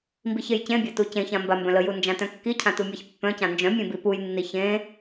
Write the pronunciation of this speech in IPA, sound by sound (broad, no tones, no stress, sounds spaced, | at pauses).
m b i ç e j c ẽ bʲ a t u c ẽ ç ã m b a m b œ̃ l ə j u n d͡ʒ ã t œ̃ kː i cʰ ã t u mʲ a ç pː œ̃ c ã n d͡ʒ œ̃ mʲ ẽ b i p u j nː i ç ẽ